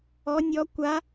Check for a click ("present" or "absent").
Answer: absent